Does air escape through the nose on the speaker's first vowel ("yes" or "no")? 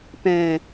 yes